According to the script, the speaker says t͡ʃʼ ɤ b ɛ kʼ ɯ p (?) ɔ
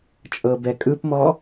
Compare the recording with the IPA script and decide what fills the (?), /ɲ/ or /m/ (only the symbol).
m